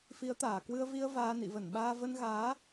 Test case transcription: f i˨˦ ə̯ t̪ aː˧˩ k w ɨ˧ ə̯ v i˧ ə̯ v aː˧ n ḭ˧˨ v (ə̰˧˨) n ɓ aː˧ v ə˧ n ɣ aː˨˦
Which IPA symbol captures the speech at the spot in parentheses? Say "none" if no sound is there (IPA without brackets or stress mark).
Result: ə˧˩